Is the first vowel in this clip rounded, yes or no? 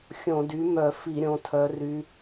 yes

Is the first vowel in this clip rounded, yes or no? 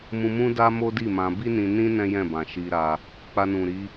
yes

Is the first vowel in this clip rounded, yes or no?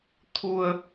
yes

